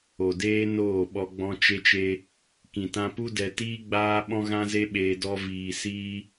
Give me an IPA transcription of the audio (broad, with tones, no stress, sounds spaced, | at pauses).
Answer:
o˨ d eː˦ n oː˦˨ ɓ ɔ˧ ɡ͡b ɔ̃˧ t͡ʃ e˧ t͡ʃ e˧ | k ĩ˨ t ã˧ p u˦ d ɛ˧ t iː˦ ɡ͡b aː˦ ɓ ɔ̃˦ ɣ ã˦ z e˦ ɓ eː˧ d ɔ˧ v iː˨ s iː˧